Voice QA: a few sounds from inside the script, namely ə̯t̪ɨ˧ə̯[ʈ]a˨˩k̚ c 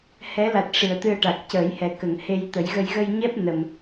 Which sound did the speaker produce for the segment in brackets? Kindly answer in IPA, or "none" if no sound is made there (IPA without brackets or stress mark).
ʈ